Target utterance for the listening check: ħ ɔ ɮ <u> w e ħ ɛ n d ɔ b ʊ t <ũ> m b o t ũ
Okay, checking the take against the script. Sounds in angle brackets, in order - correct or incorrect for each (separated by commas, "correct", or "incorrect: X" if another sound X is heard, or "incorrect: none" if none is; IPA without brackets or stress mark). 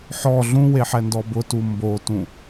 incorrect: ũ, incorrect: u